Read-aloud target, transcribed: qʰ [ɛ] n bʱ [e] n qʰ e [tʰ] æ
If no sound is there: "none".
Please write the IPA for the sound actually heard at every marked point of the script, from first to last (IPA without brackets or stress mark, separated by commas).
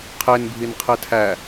e, i, tʰ